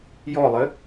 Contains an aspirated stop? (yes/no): no